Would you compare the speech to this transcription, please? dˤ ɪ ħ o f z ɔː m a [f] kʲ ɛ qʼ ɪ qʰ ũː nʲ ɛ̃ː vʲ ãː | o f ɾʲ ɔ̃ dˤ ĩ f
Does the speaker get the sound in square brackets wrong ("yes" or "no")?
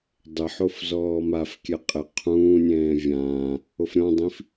no